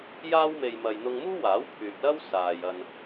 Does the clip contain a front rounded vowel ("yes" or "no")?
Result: yes